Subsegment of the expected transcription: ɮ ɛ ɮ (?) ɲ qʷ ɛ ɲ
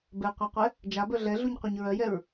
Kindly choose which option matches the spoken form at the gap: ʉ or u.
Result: u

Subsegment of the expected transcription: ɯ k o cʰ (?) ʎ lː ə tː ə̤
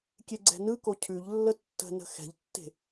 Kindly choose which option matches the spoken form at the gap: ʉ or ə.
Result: ʉ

